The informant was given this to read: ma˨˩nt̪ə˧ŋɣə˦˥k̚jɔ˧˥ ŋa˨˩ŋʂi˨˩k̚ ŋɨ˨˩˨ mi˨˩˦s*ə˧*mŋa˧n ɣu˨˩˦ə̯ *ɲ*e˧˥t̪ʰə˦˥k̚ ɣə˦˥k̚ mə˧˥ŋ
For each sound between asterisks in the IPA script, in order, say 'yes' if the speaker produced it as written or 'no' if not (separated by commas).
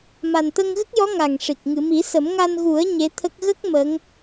no, yes